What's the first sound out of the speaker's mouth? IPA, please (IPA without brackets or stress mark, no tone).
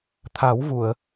t̪ʰ